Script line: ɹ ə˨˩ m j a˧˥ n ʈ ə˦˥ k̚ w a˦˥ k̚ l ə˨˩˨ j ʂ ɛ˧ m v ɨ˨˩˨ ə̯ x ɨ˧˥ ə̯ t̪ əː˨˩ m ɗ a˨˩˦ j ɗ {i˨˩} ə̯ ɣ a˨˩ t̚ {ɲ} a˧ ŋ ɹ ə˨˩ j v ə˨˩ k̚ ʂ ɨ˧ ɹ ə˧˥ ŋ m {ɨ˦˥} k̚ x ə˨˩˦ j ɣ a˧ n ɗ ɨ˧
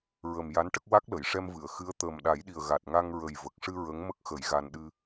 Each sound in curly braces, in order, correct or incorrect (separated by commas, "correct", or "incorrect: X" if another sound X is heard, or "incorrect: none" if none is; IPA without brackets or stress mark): correct, incorrect: ŋ, incorrect: ə˦˥